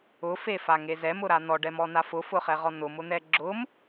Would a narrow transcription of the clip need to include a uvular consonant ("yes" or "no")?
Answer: yes